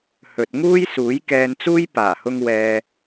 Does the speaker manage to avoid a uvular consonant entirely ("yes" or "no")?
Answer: yes